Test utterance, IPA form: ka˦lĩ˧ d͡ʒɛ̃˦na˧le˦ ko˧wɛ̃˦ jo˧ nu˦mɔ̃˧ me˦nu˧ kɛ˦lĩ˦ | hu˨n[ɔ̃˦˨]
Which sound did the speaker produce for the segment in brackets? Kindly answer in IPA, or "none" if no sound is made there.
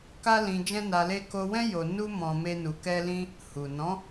ɔ̃˨˦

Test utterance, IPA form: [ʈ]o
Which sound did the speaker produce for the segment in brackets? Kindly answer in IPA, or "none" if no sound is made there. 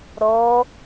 ɾ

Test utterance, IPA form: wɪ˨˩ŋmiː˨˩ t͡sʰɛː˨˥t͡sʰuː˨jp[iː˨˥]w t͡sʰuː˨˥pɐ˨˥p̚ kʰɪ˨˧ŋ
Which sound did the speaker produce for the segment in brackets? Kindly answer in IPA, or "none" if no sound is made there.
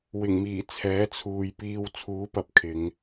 iː˧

